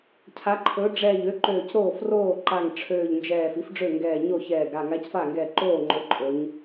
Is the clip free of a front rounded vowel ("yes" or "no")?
no